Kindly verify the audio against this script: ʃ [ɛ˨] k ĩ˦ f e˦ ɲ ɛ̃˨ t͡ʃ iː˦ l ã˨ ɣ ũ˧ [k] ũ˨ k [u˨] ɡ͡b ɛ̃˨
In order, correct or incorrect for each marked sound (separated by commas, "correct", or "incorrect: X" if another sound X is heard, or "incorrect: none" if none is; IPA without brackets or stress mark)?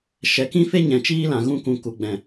correct, correct, correct